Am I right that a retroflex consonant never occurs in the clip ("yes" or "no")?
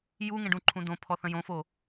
no